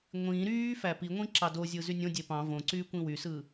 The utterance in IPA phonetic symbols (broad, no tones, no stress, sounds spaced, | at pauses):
ŋʷ ĩ ɾ yː f æ p i ŋʷ ĩ ǁ ɑ d o zʲ ɯ z y nʲ õ dʲ e p ɑ̃ v õ ǀ yː kʷ ĩ w y s ɯ